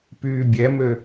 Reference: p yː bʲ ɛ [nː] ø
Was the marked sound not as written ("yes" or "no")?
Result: yes